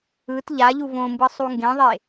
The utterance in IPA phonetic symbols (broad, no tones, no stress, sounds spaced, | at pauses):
ɯ t ʎ a ʎ u v õ m b ɯ sˤ u ŋ ɡ ẽ ðˤ e